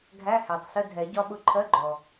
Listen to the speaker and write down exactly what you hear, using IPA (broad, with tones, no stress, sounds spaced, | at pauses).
ɡʱ æ˧˥˧ h æ˩ tˤ s ə˧˥˧ dʱ ɛ˨˩˦ ɟ ɒ˦˥ ɓ ʊ˦˥ ǃʰ ɜ˧˥˧ ɡ͡ǃ ɔ˩